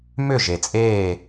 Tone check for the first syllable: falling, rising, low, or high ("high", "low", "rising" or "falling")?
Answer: falling